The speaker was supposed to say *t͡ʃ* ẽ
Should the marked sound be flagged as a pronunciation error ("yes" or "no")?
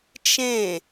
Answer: no